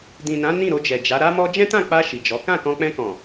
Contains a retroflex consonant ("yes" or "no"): no